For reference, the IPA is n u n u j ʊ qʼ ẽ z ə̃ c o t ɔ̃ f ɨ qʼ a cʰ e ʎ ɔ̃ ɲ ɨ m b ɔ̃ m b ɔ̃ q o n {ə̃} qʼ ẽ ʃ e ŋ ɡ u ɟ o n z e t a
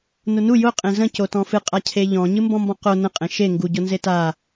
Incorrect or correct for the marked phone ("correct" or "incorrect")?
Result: correct